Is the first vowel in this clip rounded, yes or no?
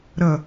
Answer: no